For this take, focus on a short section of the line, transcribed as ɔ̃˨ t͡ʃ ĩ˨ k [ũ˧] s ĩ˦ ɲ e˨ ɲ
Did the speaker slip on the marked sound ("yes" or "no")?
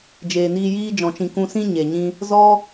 no